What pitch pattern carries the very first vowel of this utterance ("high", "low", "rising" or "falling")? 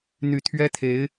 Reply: low